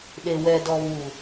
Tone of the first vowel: low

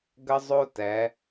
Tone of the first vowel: high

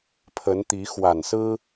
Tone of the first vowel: rising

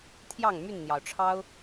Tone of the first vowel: falling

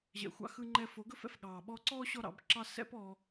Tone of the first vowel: low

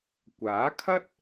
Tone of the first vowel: rising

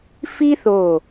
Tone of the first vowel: high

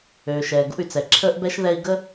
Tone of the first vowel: low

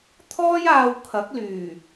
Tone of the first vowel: high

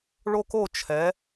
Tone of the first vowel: high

